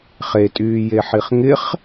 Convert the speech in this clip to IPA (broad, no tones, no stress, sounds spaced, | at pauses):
χ e tʼ yː j e ħ i χ ŋ ɪ χ